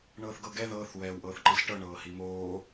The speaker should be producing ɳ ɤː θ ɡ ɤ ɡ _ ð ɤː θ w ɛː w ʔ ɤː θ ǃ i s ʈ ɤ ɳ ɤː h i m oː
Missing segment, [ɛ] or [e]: ɛ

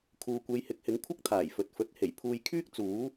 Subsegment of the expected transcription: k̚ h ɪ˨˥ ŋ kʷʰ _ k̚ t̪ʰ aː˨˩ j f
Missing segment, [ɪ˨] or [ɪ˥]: ɪ˥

